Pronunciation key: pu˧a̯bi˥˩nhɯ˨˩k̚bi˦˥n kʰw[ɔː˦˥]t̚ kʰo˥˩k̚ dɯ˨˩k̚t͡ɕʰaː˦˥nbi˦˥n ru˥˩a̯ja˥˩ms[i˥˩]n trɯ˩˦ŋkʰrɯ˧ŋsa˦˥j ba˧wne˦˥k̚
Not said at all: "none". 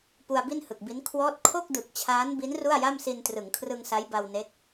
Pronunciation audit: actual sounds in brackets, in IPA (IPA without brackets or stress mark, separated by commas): ɔː˦˥, i˧